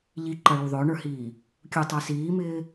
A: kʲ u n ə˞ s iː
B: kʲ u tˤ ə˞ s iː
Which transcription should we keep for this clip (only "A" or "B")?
B